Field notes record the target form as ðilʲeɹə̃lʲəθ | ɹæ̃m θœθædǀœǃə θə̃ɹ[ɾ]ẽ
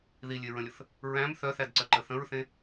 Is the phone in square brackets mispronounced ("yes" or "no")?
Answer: yes